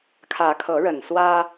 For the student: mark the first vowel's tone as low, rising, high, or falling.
rising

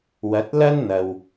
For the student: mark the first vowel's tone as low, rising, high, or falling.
rising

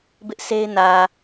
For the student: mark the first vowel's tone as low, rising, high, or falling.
high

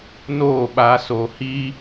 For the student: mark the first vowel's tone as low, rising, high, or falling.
falling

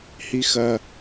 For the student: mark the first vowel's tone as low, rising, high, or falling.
high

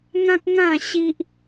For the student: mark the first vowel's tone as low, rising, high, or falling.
high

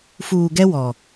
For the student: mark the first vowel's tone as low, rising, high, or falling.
low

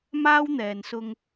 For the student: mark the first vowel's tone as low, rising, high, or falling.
high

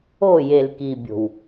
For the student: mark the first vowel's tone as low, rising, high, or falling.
falling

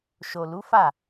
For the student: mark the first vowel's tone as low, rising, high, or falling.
low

